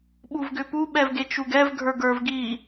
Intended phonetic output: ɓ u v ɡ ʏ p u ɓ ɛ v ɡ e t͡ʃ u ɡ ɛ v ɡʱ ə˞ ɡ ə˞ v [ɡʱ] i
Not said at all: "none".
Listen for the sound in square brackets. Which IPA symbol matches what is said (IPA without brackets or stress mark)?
ɡ